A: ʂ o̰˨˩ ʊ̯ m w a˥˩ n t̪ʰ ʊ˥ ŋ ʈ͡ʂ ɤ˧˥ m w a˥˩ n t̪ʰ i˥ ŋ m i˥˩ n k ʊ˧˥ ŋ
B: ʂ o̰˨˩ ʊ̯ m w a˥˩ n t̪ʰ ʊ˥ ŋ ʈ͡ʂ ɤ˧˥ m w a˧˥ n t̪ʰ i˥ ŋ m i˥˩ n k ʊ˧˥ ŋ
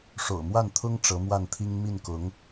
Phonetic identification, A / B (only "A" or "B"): A